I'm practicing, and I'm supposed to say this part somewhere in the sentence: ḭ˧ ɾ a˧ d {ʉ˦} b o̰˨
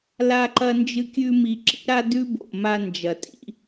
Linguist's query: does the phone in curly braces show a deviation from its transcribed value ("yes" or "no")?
no